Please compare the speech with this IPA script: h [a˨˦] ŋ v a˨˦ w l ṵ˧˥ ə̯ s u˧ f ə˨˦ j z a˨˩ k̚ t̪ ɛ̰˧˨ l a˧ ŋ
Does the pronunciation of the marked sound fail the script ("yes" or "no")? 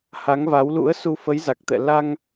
no